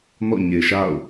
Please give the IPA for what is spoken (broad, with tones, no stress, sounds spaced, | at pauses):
n ɔ̰˦˨ ɲ e˨ ʃ a̰˦˨ ʊ̯